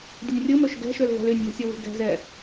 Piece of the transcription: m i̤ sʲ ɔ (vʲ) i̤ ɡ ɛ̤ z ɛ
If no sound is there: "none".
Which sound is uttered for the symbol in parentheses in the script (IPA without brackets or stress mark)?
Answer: v